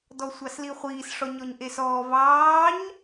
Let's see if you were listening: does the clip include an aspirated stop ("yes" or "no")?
no